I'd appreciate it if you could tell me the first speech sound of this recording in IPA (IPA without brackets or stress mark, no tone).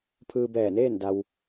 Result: pʰ